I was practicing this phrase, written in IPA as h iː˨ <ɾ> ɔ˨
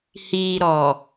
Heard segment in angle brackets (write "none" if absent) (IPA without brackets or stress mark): ɾ